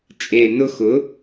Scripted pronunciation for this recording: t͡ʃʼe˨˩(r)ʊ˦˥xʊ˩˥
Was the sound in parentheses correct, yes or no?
no